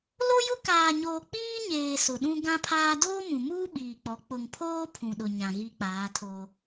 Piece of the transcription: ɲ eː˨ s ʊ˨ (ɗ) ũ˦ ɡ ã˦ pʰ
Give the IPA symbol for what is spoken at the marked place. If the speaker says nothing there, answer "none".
ɗ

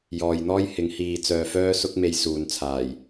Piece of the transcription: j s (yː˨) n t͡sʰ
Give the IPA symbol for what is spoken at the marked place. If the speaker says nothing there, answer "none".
uː˨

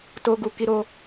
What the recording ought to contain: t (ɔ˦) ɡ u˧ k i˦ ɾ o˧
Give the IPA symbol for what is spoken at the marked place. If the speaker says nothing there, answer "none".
o˦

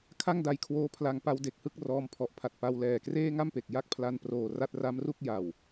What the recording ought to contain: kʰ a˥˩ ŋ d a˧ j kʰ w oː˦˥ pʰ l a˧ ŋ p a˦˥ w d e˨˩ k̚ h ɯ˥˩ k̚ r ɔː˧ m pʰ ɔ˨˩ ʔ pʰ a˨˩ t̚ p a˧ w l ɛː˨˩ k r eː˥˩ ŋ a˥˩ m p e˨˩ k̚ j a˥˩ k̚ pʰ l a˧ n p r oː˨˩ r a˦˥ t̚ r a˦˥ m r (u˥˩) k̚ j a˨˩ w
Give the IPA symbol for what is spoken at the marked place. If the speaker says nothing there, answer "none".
u˥˩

